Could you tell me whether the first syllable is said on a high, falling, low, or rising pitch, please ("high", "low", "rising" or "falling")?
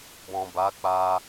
low